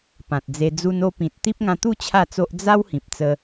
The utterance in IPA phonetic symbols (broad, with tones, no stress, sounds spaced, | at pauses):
p ã˨ t̚ d͡z e˧ d͡z u˧ n o˧ p ĩ˨ t̚ t̪ i˦ p̚ ŋ ã˧ t̪ u˥˧ t͡ɕʰ a˥˧ t͡s o˦ ʔ d͡z a˦ w h ĩ˨ p̚ t͡s ə˧